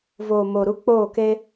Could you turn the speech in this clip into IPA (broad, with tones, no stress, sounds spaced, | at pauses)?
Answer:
v oː˨ m o˨ ɾ u˦ k͡p oː˦˨ k e˦